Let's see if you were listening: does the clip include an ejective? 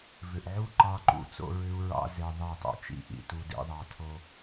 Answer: no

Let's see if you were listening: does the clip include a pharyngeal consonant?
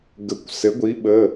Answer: no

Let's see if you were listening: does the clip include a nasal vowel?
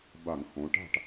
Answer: yes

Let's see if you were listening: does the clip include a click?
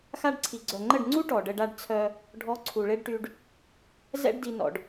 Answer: yes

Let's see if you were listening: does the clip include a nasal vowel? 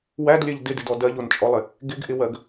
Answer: no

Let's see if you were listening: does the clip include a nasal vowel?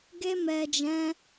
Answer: yes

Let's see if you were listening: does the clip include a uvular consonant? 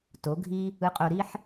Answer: yes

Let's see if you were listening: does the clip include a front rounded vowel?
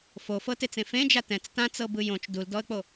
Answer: no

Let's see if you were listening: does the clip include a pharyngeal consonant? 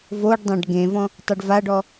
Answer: no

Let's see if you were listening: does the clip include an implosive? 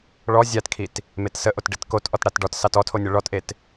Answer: no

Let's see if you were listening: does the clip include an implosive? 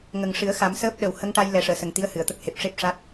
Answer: yes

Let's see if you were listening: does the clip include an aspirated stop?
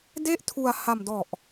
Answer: yes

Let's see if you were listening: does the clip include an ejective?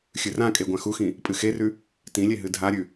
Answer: yes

